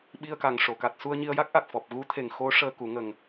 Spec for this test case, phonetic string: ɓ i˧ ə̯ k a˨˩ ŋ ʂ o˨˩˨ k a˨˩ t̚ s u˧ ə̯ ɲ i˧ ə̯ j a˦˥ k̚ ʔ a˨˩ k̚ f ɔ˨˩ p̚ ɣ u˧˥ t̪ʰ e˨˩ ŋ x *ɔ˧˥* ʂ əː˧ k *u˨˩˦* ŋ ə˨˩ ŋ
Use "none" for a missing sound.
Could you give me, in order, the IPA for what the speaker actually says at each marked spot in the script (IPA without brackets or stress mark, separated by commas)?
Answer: o˧˥, u˨˩˦